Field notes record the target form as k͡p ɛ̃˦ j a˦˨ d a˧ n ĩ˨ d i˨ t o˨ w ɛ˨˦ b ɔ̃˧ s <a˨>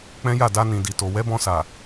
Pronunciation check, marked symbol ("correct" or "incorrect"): correct